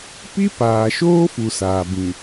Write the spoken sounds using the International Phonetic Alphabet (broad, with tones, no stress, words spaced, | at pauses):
pi˦paː˨ʃoː˦fu˨ saː˨bĩ˨